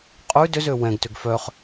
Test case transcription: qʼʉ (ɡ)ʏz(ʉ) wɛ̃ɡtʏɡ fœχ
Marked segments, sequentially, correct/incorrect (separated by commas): incorrect, incorrect